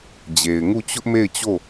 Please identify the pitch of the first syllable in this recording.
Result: low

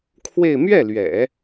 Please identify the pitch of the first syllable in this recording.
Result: falling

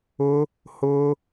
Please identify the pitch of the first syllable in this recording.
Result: high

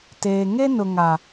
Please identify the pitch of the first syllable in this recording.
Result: low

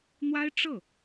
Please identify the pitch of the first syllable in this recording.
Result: high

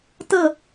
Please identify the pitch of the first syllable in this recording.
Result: falling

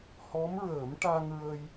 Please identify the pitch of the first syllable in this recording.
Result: rising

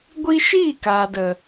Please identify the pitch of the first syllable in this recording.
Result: high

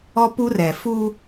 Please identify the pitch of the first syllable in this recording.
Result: high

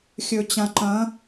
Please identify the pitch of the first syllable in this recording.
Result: low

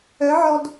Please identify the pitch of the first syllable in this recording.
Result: rising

